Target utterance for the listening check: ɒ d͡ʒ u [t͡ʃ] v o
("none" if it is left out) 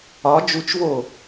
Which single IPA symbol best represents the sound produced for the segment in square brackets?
t͡ʃ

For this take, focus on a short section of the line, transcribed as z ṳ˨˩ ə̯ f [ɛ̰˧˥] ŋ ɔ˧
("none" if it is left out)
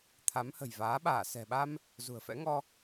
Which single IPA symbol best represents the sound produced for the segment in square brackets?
ɛ̰˧˥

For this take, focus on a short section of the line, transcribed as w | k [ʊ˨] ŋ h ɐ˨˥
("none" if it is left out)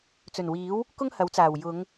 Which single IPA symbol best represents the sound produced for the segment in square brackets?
ʊ˥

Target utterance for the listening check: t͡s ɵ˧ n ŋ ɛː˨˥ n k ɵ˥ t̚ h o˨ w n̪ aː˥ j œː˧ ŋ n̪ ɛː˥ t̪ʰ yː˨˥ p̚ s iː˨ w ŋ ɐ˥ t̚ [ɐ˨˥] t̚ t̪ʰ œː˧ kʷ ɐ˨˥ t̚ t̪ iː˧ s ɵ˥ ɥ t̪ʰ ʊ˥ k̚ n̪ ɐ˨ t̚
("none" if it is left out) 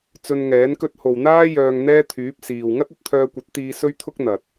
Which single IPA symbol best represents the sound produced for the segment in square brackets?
ɐ˨˥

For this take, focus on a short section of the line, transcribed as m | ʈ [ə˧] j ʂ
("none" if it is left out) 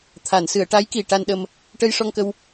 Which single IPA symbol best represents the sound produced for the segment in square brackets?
ə˧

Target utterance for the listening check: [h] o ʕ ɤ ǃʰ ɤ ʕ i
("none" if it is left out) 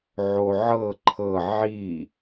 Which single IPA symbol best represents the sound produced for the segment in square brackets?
ʕ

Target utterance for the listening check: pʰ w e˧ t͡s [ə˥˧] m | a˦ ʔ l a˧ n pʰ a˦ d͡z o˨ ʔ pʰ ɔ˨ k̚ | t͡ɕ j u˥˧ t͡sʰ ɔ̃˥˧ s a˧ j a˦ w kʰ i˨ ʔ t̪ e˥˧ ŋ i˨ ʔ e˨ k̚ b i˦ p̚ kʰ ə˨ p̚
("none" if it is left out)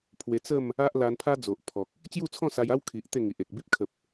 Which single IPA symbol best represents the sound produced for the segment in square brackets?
ə˥˧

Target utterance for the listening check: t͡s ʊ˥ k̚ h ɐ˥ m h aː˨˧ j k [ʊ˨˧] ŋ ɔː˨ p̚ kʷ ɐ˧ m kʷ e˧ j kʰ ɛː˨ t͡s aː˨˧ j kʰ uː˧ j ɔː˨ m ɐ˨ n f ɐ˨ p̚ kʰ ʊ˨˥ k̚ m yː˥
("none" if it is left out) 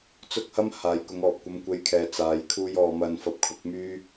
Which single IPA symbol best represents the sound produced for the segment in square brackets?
ʊ˨˧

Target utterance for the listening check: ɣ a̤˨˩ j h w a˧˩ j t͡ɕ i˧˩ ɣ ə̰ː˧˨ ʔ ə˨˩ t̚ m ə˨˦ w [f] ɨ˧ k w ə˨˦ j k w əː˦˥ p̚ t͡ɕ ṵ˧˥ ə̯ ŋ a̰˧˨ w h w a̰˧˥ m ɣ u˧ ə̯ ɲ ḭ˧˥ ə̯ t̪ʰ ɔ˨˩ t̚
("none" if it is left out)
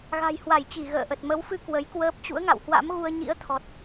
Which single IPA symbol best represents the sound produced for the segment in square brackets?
f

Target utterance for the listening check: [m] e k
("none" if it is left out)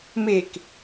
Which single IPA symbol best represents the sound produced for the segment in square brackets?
m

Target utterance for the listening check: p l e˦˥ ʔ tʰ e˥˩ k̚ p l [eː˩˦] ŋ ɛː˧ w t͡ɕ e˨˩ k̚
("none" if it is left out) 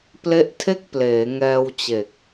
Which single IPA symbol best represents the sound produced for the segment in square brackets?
eː˩˦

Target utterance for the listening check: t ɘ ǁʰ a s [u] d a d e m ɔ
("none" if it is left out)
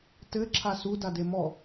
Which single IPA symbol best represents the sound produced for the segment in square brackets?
u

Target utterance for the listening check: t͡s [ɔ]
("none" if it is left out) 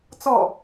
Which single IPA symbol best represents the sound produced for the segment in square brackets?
ɔ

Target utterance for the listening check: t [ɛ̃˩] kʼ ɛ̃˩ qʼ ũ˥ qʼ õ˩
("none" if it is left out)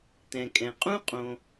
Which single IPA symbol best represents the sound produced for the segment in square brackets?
ɛ̃˩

